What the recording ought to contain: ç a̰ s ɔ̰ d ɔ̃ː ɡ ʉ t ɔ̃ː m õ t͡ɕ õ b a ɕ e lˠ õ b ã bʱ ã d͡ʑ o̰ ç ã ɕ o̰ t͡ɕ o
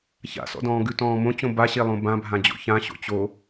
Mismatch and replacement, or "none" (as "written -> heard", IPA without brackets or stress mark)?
none